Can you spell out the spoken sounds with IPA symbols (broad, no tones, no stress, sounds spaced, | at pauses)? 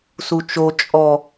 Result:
s u t͡ʃ o t͡ʃʼ ɔ